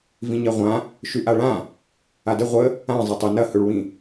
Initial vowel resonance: nasal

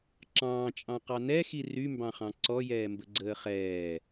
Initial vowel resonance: nasal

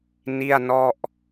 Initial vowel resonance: oral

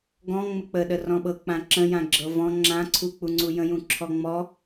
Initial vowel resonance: nasal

